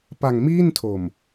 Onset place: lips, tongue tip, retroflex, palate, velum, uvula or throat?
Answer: lips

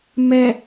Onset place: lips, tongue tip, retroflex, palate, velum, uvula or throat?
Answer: lips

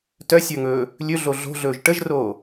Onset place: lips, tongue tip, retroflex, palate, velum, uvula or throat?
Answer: tongue tip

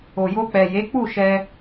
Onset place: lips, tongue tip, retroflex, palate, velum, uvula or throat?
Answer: palate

